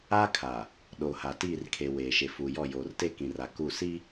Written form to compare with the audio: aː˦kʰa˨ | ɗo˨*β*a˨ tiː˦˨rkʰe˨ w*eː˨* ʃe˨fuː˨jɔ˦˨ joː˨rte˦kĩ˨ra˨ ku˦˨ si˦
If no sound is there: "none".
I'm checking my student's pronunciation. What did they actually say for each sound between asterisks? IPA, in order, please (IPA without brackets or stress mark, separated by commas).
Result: h, eː˨